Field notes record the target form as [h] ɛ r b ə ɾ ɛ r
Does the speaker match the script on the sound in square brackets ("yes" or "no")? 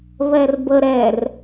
no